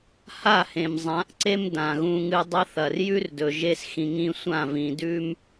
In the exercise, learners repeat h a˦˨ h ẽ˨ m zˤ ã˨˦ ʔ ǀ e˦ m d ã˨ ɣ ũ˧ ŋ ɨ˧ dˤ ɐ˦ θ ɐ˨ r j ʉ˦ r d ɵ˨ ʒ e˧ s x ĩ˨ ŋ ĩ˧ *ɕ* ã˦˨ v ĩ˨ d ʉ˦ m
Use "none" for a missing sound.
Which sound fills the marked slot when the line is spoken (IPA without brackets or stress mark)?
sʷ